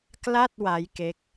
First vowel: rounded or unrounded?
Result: unrounded